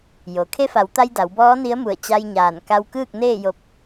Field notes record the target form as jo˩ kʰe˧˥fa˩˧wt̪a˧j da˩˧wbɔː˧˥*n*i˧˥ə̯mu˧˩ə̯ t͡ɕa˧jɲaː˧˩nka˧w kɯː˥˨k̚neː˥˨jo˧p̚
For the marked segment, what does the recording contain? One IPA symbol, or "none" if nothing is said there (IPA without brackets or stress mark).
n